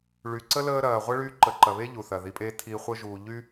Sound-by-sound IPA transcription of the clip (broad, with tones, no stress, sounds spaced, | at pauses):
ɭ y˨ ǀ ə˥ l əː˦ ɾ ɐː˨ ʁʷ ə˥ ɭ yː˦ ǃ ə˨ ǃ ɐ˨ β e˥ ʎ u˩ θ ɐ˩ ð i˨ pʼ e˦ tʰ i˦ χʷ ə˦ ʒ uː˨ ʎ y˥